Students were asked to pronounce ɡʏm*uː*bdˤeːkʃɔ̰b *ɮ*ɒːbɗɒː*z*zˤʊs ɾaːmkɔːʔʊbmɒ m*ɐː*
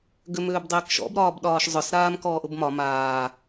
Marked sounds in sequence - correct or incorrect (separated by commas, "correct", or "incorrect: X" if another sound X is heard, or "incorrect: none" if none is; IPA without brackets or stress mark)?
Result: incorrect: ʏː, incorrect: ɾ, incorrect: ʃ, incorrect: aː